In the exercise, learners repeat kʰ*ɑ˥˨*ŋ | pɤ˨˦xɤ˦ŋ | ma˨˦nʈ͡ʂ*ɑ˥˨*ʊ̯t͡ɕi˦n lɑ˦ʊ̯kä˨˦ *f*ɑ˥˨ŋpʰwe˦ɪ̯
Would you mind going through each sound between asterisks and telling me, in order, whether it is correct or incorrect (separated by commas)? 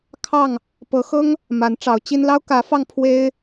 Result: correct, incorrect, correct